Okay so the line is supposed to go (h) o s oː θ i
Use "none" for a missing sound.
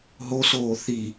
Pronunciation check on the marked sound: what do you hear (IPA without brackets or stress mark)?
ɦ